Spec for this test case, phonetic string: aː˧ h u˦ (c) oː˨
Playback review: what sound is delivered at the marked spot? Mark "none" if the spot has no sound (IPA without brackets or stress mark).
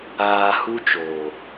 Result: t͡ʃ